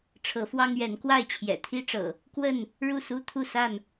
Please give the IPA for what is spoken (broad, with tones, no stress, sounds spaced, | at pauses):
ʈ͡ʂʰ ɤ˨˦ f w ɑ˦ ŋ ɥ ɛ˨˦ n k w a˥˨ ɪ̯ t͡ɕʰ j ɛ̰˨˩ t̪ʰ i˦ ʈ͡ʂ ɤ̰˨˩ | k w ə˥˨ n | ɻ u˥˨ s u˦ t̪ʰ u˥˨ s a˥˨ n